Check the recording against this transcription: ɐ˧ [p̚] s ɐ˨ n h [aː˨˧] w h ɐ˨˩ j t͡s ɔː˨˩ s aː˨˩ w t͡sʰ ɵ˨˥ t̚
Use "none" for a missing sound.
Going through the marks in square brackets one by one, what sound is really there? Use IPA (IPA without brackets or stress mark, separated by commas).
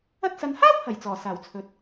t̚, aː˥